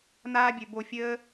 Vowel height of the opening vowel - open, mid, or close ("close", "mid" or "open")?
open